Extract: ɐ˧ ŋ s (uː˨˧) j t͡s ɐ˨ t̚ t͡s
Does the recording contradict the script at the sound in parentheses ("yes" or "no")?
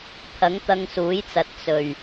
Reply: yes